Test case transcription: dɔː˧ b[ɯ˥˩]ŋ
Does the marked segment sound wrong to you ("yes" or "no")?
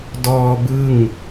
no